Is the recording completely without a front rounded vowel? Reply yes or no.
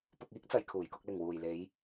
yes